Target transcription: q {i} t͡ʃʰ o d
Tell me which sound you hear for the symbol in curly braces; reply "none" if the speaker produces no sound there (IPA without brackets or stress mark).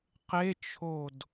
e